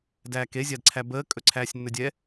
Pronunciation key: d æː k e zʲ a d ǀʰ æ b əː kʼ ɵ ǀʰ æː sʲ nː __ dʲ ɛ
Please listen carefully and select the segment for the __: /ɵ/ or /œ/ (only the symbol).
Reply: ɵ